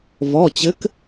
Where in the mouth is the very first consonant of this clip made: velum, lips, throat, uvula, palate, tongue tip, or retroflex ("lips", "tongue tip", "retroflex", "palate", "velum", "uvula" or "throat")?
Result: lips